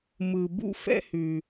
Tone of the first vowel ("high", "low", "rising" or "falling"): low